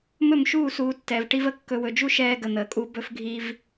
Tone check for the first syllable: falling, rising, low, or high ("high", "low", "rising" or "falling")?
falling